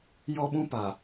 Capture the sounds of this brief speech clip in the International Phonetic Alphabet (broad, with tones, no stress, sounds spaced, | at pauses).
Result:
j ɔ˦ ɓ ũ˦ p a˨